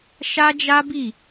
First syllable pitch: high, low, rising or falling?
high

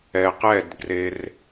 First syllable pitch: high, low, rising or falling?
low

